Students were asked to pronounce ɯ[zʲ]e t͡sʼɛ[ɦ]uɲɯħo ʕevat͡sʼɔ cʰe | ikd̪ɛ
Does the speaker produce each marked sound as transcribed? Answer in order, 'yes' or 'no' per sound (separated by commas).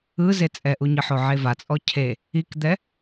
no, no